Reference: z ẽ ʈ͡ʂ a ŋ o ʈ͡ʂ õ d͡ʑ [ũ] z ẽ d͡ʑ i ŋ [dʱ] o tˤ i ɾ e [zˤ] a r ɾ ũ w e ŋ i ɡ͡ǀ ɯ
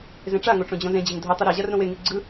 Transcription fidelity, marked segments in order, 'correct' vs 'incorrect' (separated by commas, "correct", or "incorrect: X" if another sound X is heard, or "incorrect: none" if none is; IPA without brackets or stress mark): incorrect: õ, correct, incorrect: ʑ